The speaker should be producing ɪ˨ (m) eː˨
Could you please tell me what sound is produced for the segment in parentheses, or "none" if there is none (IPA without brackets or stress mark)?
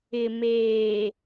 m